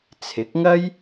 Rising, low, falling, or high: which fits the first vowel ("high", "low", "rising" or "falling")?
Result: rising